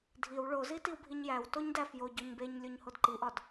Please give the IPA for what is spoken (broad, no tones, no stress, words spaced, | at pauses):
dʱiw ɭozi tiwbʱiɲjæw toɲdæf jo ɟoɲbeɲ lʲoɲhodǃiʔɒd